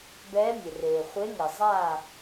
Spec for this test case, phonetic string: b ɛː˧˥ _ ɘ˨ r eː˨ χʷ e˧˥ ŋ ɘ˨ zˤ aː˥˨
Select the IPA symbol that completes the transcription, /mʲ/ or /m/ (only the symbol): mʲ